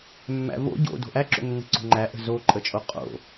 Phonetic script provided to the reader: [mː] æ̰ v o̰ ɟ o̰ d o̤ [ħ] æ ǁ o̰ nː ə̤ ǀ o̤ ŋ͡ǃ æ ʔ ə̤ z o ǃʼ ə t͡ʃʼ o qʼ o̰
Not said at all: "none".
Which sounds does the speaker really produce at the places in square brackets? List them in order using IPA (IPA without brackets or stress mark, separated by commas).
mː, ʔ